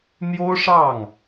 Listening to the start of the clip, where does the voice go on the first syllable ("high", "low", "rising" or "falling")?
high